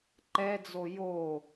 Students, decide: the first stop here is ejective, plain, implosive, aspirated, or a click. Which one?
click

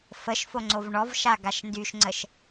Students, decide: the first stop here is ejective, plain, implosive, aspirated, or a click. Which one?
click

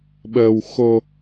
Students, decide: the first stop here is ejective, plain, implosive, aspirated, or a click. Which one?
implosive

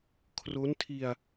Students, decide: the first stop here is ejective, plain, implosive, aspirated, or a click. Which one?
aspirated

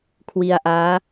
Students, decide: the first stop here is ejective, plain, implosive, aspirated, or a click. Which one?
aspirated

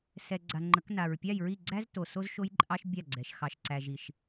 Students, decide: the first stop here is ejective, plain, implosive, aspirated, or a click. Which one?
click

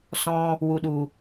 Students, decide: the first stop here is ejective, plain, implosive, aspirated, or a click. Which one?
implosive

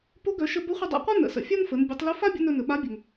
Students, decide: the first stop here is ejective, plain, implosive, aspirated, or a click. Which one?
plain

